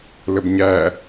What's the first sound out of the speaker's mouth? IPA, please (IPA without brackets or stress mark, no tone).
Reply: l